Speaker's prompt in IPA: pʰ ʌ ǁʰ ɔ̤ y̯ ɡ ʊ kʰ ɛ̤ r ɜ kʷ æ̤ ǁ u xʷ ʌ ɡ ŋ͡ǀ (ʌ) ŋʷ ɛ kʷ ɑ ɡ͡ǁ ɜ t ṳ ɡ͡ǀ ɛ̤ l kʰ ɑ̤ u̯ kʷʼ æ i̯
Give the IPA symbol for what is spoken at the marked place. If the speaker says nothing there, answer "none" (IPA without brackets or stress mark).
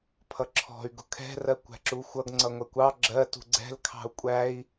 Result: ʌ